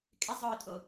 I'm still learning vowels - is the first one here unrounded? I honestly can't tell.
yes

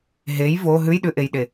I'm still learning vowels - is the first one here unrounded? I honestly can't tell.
yes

